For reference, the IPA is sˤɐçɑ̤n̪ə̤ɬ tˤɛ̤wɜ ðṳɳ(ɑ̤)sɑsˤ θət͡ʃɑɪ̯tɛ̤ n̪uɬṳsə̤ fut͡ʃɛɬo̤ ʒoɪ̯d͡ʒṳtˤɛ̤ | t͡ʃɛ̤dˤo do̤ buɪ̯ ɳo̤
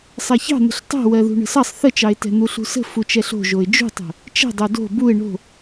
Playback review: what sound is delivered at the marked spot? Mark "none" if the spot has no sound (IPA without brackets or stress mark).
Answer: ə̤